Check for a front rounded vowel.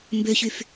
present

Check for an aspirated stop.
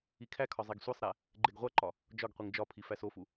present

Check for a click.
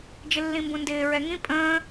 absent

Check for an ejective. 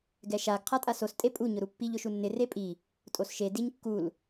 present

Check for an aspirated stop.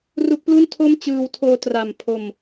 present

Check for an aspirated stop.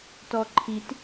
present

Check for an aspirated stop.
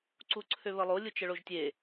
present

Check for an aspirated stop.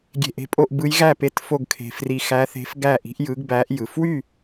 present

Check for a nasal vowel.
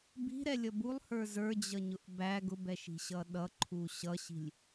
absent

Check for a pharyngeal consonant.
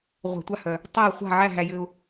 present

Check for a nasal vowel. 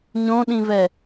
present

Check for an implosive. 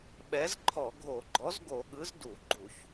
present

